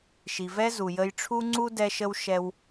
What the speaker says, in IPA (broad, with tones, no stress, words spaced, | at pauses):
ʃi˨vɛ˦zu˨ jə˧jʈ͡ʂʰu˦ŋ͡ǀu˦ dɛ˦ʃə˦w ʃɛ˧w